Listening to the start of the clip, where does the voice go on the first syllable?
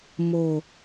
low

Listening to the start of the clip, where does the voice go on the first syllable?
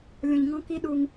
low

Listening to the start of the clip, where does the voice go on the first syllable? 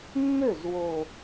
falling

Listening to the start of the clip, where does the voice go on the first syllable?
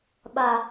high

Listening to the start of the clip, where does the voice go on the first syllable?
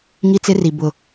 high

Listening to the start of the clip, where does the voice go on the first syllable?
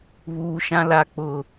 high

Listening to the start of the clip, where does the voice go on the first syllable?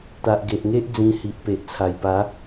low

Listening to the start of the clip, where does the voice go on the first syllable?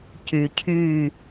low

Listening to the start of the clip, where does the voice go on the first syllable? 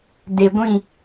low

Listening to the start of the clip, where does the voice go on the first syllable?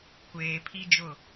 low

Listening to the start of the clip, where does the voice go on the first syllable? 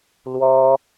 high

